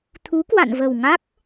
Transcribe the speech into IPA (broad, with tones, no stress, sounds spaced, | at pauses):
t̪ʰ u˨˦ k w a̰˧˨ n v ə˨˩ w ŋ a˦˥ k̚